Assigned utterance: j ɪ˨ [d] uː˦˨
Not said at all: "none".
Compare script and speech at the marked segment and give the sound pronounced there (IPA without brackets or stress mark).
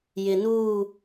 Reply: n